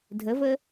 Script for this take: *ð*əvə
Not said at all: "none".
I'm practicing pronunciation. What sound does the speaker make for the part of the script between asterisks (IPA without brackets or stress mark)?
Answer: dʱ